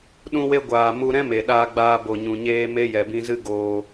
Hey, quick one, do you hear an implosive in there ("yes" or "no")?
yes